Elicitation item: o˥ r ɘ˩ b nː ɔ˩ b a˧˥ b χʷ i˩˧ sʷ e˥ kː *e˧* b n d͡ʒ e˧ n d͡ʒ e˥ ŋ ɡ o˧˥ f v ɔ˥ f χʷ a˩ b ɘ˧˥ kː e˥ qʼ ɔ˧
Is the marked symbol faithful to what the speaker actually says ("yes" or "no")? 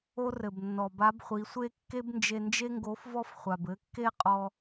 no